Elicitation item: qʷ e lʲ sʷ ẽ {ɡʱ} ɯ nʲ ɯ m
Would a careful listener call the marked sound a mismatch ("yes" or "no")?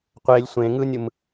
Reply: yes